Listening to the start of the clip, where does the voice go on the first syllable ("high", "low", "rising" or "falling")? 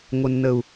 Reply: low